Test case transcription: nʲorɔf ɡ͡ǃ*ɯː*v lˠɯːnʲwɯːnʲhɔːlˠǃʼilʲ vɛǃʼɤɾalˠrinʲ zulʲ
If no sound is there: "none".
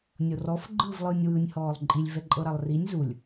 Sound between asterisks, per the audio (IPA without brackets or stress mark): ɯ